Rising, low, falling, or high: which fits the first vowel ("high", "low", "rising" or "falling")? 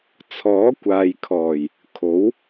rising